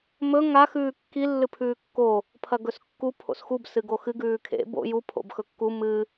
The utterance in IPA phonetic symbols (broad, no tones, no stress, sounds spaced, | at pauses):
m ɵ ŋ a x ʉː kː i lː ɨ pʰ ʉː kː o | pʰ ɐ ɡ ɵ s kː u pʰ o̰ s x u b s ɨ ɡ o x ɨ ɡ ʉː kʰ ḛ b o̰ j u pʰ o̰ b x ɵ kː u m ɨ